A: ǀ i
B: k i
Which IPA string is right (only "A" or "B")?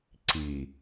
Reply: A